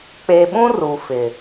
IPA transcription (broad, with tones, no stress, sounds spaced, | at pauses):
k͡p e˨ ɓ ũ˦ r u˨ f ɪ˨